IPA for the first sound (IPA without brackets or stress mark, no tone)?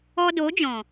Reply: ɔ